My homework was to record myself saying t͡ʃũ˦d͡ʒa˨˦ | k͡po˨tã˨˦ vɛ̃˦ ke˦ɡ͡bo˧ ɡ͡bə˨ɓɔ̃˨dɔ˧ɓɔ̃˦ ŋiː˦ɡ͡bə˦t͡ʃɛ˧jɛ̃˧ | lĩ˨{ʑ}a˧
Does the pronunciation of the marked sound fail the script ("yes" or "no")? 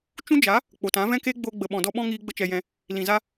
yes